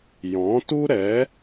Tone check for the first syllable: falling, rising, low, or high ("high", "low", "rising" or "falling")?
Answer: rising